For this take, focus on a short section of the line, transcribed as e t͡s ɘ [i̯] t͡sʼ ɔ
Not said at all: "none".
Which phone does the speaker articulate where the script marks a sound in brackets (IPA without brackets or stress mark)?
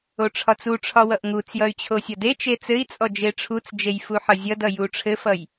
i̯